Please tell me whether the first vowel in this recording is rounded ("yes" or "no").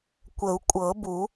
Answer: no